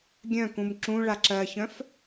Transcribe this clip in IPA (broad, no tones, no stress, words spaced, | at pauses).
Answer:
ɡʲœ̃kũm ǁũ ɭaǁɜçœ̃f